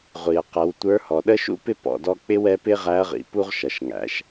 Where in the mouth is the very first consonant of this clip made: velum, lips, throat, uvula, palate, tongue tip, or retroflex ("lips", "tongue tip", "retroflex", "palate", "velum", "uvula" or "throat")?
uvula